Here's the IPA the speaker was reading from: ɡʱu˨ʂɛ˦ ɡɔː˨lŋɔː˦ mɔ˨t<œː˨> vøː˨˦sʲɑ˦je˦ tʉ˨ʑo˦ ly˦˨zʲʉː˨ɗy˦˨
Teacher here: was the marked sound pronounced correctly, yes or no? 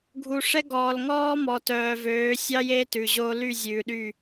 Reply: yes